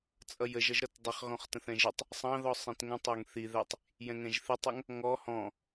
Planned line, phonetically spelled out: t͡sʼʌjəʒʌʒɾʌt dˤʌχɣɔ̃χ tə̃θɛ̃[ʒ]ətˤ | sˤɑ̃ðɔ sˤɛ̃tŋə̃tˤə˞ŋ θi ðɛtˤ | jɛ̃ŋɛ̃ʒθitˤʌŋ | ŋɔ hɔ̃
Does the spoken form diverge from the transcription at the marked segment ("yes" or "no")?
no